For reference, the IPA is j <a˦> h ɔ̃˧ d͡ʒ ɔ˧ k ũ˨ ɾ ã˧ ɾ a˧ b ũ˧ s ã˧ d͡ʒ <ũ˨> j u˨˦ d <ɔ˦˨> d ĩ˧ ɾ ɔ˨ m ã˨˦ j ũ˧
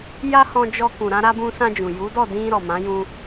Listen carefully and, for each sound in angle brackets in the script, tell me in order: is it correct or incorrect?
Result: incorrect: a˧, correct, correct

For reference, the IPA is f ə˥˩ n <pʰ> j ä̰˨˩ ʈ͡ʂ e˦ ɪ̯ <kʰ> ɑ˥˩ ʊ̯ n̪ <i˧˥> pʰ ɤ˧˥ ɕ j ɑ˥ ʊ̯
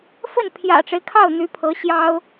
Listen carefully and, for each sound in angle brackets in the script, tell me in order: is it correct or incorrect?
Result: correct, correct, incorrect: y˧˥

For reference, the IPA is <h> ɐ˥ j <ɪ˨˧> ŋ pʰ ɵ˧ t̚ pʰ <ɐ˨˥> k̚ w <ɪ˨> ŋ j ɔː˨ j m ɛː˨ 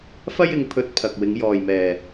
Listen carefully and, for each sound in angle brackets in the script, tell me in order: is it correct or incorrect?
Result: incorrect: f, correct, incorrect: ɐ˨, incorrect: ɪ˨˧

